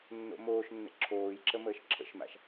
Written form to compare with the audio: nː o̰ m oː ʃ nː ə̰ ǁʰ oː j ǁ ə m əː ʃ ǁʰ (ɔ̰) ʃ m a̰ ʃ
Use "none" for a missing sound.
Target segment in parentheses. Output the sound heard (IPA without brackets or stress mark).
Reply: ə̰